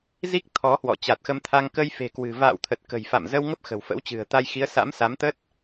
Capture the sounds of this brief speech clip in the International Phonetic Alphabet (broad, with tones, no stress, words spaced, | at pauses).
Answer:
zi˦˥k̚ t̪ʰɔ˨˦hwɔ̰˧˨ t͡ɕa˨˩t̚xə˧mt̪ʰa˧ŋ kə˧jfe̤˨˩kwɨ̤˨˩ va̰ː˧˨wt̪ʰə˨˩t̚ kə̤˨˩jfa̰˧˨mzə˧w ŋə˦˥p̚xə̤˨˩w fə̰˧˥wt͡ɕɨ̤˨˩ə̯t̪a˧jxi˨˦ə̯ sa̰˧˥msa˨˦mt̪ə˦˥t̚